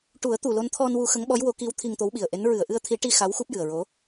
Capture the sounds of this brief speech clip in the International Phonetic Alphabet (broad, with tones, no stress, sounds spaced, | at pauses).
ʈ u˨˩˦ ə̯ t̪ u˨˩ l o˧ n t̪ʰ ɔ˧ n w u˧ x ə˧˥ ŋ ɓ ɔ˧˥ j w o˧˥ k i˧˥ w t̪ʰ i˧ ŋ t̪ o˧˥ w ɓ i˨˩ ə̯ ʔ e˧˥ n ɹ ɨ˨˩˨ ə̯ ʔ ɨ˧ ə̯ t̪ʰ i˨˩˦ ʈ i˧ x a˧˥ w x u˦˥ p̚ j ɨ˨˩ ə̯ ɹ o˧˥